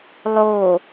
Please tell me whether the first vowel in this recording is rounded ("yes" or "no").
yes